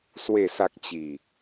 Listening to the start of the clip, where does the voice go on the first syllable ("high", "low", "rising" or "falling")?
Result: low